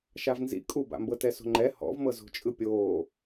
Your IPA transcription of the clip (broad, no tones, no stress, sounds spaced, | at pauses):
ʃ a v n z ḭ kʼ u b a̰ m b ɤ t ɛ s o̤ ŋ͡ǃ ɛ h ɔ̰ v m ɤ z o̤ t͡ʃʼ ɯ pʲ oː